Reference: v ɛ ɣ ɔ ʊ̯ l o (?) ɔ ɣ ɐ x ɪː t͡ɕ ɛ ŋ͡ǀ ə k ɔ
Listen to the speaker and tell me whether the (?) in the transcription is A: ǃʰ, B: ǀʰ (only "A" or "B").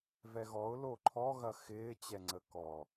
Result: A